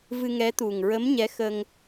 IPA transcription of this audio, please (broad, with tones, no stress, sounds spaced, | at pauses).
v ɨ˧ ŋ ɛ˧˥ t̪ u˨˩ ŋ ɹ ə˧˥ m ɲ ɛ˧˥ x ə˧ ŋ